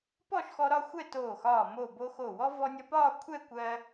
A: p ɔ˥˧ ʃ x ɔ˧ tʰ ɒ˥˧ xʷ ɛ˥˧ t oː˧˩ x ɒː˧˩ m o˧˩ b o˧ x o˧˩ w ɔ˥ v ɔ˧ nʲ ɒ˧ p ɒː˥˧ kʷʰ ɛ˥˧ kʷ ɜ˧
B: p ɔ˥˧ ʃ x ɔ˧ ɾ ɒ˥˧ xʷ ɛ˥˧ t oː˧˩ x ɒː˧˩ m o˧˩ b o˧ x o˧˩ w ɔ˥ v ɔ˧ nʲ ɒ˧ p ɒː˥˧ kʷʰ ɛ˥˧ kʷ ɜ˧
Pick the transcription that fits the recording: B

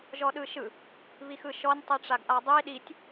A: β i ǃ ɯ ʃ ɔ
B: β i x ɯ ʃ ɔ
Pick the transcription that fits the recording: B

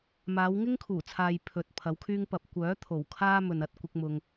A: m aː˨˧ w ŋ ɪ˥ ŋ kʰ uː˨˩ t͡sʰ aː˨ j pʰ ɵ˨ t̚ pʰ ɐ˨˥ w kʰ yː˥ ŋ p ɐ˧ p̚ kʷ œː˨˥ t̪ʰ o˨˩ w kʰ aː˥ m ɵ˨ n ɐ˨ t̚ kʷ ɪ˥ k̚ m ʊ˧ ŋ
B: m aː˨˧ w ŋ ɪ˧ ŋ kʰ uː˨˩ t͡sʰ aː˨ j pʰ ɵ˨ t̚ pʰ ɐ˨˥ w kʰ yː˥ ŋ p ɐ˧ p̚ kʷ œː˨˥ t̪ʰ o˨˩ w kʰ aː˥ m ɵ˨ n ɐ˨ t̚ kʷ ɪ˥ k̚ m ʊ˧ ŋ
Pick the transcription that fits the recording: A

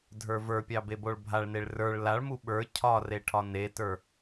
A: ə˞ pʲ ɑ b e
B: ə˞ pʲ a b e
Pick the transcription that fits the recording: A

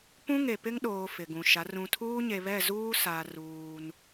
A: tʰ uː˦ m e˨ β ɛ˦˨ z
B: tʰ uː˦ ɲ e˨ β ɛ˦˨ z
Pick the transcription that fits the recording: B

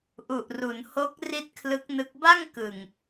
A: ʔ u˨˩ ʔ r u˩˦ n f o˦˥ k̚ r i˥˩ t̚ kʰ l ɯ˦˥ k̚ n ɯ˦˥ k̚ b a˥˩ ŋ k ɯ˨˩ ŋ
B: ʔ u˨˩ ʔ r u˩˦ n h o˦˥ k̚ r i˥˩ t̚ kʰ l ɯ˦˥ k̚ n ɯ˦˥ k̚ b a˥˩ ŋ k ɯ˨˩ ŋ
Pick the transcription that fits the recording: B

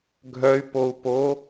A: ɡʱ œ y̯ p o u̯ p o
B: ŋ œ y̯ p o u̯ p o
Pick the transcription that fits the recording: A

